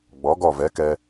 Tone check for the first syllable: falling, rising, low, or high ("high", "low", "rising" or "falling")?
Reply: rising